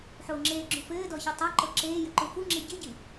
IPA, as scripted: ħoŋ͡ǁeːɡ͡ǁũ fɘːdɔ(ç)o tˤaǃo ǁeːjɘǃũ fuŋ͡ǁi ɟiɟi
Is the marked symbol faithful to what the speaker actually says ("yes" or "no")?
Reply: yes